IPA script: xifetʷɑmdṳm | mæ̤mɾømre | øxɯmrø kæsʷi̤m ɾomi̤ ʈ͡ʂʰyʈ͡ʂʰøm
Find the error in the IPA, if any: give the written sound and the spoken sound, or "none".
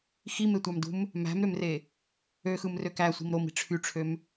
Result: f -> m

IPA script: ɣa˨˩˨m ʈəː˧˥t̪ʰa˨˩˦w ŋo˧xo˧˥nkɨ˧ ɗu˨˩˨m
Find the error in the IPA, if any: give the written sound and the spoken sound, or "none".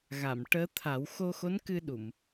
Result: ŋ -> x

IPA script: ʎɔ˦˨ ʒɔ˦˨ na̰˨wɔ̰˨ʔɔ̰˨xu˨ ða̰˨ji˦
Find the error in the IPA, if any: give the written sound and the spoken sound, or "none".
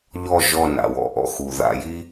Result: none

